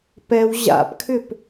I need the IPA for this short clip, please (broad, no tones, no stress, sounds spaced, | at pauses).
p ɛ w ʑ a̰ p kʰ ʏ p